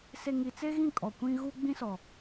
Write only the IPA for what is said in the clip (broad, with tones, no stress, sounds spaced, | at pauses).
s e˨ ŋ i˨ t͡s e˦ ɣ ĩ˦˨ kʼ ɔ˨ kʷ ĩ˦ ɣ u˦ ɡ͡b ĩ˦ s ɔ˨